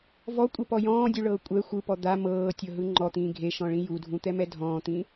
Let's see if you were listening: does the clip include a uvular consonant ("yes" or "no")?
no